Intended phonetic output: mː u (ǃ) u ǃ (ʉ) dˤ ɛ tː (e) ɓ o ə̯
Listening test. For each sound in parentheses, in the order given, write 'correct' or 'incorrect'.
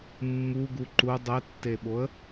incorrect, incorrect, correct

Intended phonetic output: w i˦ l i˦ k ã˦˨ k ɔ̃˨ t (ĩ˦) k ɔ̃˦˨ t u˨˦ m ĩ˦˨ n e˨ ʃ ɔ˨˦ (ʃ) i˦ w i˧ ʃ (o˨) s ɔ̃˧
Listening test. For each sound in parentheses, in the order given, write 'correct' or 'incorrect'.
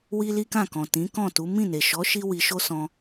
incorrect, correct, incorrect

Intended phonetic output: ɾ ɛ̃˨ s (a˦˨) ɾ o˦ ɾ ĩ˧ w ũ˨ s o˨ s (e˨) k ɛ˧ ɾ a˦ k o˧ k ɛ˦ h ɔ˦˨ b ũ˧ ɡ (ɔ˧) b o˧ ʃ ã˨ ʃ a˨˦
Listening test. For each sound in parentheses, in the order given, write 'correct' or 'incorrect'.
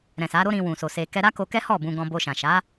incorrect, correct, incorrect

